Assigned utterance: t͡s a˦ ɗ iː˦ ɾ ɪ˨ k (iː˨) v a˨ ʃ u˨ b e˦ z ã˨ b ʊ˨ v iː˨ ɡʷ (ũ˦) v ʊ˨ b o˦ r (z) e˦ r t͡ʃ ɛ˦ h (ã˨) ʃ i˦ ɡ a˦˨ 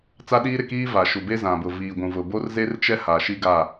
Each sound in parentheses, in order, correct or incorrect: incorrect, incorrect, correct, incorrect

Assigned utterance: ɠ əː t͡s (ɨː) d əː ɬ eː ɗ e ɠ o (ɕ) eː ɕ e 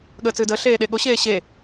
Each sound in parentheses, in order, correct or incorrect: correct, correct

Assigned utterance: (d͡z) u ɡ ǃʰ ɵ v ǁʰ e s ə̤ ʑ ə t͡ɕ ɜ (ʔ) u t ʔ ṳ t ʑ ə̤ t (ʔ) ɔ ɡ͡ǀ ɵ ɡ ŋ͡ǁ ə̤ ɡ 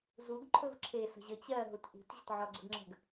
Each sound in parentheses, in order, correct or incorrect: incorrect, incorrect, incorrect

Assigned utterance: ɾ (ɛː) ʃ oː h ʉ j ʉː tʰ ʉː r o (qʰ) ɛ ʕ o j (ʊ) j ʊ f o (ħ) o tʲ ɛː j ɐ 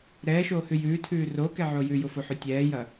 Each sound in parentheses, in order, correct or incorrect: correct, incorrect, incorrect, correct

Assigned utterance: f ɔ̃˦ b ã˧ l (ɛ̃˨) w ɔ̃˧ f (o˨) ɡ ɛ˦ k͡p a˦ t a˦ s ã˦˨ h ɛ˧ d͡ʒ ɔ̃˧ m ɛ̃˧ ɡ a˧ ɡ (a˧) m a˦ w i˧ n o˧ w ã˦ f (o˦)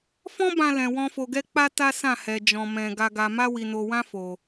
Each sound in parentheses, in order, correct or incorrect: correct, incorrect, correct, incorrect

